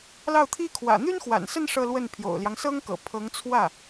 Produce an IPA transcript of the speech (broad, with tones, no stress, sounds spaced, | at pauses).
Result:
l ɑ˥˩ ʊ̯ t̪ʰ i˥ kʰ w ä̰˨˩ n̪ y˥ n x w a̰˨˩ n s ə˥˧ n ʂ ɤ˥˧ l w ə˥˩ n pʰ j o̰˨˩ ʊ̯ l j ɑ˦ ŋ s ɤ˥ ŋ k ɤ̰˨˩ pʰ ɤ˧˥ ŋ t͡sʰ w ä˥˩